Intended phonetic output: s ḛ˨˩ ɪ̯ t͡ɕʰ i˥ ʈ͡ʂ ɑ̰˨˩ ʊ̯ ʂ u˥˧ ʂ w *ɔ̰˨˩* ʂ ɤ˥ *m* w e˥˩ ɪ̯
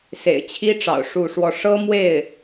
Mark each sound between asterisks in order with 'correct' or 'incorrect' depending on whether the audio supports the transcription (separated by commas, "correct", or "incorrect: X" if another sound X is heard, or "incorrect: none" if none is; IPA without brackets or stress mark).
incorrect: ɔ˥˩, correct